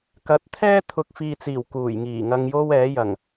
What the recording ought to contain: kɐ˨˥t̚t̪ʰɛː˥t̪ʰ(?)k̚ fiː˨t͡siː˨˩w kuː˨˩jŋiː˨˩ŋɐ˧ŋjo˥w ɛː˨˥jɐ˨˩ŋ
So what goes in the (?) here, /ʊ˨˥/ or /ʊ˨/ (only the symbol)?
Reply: ʊ˨